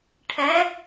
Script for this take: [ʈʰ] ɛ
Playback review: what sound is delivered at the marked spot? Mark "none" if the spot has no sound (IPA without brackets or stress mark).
ʈʰ